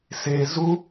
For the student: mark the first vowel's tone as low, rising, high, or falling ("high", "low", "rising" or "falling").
high